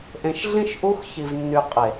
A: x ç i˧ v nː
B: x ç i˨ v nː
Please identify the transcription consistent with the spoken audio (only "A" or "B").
B